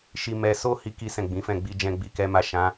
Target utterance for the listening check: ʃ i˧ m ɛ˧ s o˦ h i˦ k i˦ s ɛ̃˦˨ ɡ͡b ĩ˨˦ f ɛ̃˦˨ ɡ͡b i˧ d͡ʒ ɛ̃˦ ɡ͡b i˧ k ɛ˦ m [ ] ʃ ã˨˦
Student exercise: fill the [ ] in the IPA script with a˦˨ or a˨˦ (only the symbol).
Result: a˦˨